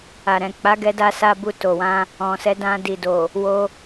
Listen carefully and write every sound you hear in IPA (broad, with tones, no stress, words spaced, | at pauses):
a˨ ɾɛ̃˨ k͡pa˨˦ɡɛ˧da˧sa˧ bu˧to˨wã˧ | ɔ̃˨sɛ˨˦ dã˧di˨do˨ | wo˧